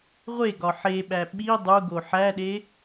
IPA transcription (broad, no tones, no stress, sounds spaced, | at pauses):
ʁʷ e ɡ ɒ ħ e ɓ æ ɓ i dˤ u ɡ o ħ æ ɗ e